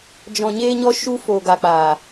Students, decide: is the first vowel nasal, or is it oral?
nasal